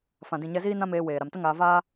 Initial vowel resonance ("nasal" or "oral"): nasal